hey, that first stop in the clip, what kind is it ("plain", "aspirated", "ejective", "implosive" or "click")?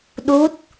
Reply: implosive